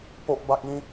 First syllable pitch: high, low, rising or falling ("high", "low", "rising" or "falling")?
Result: high